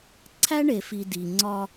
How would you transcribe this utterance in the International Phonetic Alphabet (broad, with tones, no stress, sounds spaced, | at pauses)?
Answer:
ǀʰ æ˦ ɳ e˨ f i˨ d i˨ ŋ͡ǀ ɒ˦